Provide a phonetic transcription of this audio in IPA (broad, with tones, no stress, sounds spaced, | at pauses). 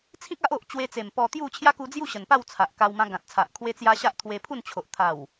t͡sʰ ĩ˦ k̚ a˦ ʔ o˨ ʔ t͡ɕ w e˧ t͡s e˨˩ m p ɔ˧ t̪ j u˥˧ t͡ɕʰ j a˦ k u˧ d͡z j u˥˧ ɕ ə˨˩ n p a˥˧ w t͡sʰ a˨ ʔ k a˧ w m ã˧ ɡ ã˨ t̚ t͡sʰ a˨ ʔ kʰ w e˧ t͡s j a˧ ɕ a˦ ʔ t̪ʰ w e˧ pʰ u˥˧ n t͡ɕʰ o˨ ʔ t̪ʰ a˨˩ w